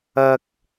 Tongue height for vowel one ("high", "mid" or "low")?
low